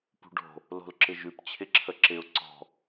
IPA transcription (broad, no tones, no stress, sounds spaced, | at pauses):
p ṳ ɖ o̤ | l o̤ l ǁ ɪ ʒ ʉ p t͡ɕʰ ɪ ǁʰ ə ǁ ɪ ʊ̯ ǀ ɔ̤